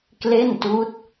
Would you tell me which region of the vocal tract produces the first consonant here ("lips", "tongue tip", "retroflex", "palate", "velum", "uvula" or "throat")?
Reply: velum